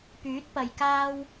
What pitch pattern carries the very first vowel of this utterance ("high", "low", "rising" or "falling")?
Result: rising